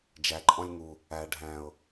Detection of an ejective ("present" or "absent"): present